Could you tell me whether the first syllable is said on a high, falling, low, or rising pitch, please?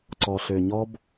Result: low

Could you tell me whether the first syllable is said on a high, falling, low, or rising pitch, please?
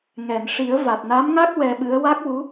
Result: low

